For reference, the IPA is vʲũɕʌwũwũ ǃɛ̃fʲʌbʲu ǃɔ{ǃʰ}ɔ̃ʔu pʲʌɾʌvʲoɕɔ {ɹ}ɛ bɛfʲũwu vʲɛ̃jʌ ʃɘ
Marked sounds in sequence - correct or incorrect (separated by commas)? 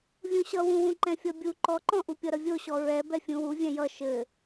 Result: incorrect, correct